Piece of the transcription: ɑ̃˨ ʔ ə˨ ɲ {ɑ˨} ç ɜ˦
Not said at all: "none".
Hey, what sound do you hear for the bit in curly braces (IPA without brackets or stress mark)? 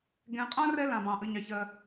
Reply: ɑ˨